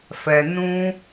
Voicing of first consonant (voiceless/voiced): voiceless